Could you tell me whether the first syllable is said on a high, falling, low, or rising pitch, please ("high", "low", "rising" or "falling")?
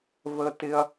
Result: high